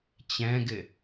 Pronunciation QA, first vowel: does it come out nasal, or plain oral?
nasal